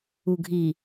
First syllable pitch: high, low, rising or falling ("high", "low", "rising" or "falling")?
low